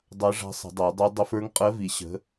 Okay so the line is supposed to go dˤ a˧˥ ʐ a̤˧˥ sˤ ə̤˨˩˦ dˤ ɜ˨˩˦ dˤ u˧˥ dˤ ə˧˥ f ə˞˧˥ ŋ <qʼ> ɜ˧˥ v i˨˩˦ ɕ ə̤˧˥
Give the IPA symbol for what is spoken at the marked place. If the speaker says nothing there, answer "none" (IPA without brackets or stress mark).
qʼ